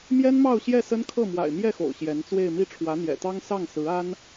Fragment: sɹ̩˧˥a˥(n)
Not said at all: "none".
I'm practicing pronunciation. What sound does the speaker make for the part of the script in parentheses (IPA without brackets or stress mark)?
n